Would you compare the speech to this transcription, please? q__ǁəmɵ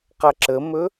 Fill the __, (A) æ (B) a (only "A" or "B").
B